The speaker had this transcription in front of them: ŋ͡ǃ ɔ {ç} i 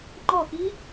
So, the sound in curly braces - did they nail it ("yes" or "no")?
no